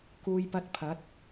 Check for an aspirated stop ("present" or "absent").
present